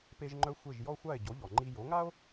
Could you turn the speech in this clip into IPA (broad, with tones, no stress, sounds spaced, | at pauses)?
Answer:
p e˧ ʒ ŋ͡ǃ œ˧ xʷ e˥˩ ʒ j ɔ˥ xʷ a˥˩ e̯ ɟ o˩˥ ʎ ɔ˩ ŋ͡ǃ i˧ j o˩˥ ŋ a˥ o̯